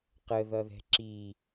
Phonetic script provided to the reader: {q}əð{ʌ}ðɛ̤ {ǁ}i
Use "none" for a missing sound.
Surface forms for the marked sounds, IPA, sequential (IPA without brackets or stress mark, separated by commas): q, ʌ, ǁ